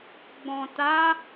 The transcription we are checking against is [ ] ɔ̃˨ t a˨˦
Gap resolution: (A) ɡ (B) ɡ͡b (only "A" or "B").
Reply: B